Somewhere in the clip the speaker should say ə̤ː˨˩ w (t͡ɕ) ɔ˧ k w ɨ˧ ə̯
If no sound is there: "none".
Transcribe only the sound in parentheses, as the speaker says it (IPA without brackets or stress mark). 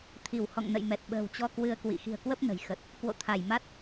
t͡ɕ